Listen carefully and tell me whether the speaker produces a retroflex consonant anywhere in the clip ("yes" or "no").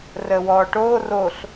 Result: yes